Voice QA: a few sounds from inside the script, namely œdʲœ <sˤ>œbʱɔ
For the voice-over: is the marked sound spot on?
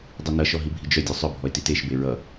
yes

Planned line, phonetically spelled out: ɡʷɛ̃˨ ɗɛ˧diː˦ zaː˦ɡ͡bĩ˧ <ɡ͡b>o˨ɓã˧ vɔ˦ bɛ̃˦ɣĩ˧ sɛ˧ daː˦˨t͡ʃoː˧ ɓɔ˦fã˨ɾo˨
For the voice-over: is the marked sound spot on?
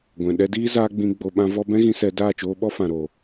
yes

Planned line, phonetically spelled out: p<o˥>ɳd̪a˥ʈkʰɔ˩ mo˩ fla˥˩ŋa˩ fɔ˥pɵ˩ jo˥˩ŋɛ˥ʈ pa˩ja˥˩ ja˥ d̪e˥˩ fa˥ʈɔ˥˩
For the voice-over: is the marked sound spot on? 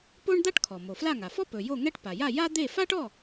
yes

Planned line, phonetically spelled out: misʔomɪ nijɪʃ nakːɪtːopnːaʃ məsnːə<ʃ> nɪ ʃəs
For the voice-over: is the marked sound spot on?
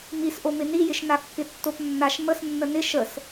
no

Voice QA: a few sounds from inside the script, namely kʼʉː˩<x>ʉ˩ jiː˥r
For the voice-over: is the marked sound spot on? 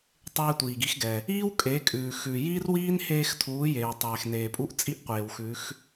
yes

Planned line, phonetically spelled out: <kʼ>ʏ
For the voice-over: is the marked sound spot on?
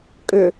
yes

